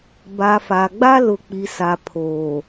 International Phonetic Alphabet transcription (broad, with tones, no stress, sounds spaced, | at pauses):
b a˨ f a˨ ɡ͡b a˦ l ʊ˨ k͡p i˨ s a˨ pʰ oː˨